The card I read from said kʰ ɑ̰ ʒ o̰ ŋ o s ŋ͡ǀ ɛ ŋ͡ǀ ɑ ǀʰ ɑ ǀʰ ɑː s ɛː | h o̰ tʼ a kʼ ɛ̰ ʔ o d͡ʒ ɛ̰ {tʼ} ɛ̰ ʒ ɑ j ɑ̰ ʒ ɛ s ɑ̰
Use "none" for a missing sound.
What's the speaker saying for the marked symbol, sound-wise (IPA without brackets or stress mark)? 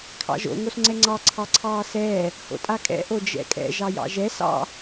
kʼ